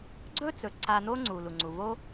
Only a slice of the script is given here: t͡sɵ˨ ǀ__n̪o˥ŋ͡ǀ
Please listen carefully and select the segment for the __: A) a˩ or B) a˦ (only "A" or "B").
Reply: B